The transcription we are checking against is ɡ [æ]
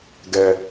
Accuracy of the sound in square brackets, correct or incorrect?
incorrect